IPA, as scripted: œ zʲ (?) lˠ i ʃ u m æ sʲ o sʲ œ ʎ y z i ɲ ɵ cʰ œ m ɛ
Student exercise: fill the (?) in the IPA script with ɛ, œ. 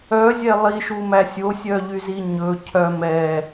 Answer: ɛ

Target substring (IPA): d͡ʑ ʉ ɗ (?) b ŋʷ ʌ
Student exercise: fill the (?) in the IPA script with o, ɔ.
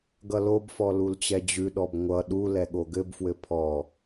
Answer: ɔ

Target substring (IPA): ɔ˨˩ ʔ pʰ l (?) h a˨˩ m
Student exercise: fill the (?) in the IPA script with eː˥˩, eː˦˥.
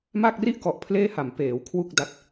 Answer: eː˥˩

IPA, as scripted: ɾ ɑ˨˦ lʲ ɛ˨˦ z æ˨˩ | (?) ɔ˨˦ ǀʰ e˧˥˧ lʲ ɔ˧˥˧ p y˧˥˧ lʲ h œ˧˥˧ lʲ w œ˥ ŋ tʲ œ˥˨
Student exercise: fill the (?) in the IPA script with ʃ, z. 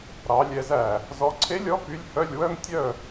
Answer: z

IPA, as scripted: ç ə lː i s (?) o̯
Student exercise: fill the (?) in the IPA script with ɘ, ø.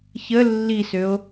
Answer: ø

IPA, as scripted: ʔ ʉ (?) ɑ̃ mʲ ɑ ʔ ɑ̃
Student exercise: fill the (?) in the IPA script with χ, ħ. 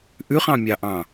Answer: χ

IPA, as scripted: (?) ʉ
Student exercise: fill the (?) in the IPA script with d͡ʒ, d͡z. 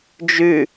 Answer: d͡ʒ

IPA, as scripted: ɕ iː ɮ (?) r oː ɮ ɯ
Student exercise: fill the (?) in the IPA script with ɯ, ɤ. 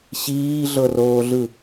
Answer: ɤ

